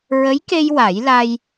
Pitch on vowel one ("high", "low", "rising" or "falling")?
rising